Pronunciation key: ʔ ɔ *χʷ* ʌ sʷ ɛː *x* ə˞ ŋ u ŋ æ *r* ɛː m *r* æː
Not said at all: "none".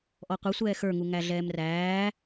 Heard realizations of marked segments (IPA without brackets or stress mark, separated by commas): qʷ, x, ɮ, r